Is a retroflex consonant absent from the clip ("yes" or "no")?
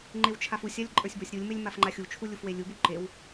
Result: yes